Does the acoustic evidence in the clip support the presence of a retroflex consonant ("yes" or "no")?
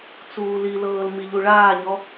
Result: yes